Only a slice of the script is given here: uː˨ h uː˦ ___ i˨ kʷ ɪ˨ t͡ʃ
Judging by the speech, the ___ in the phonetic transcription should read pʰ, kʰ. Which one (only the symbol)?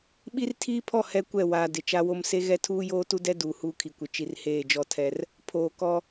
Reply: kʰ